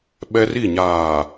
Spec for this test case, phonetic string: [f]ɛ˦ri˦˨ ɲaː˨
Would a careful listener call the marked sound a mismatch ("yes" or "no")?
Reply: yes